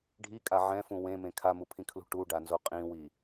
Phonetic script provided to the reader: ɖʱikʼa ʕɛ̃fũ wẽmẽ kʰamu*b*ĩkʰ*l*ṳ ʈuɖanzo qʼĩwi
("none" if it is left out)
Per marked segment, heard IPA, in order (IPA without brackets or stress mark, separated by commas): pʰ, l